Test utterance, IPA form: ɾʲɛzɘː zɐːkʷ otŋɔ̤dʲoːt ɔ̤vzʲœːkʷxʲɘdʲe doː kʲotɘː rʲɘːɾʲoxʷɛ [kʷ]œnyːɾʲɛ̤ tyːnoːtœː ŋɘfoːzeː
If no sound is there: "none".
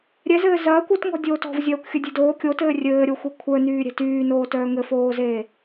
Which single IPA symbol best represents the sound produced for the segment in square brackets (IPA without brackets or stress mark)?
kʷʰ